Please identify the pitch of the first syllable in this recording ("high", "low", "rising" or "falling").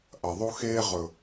low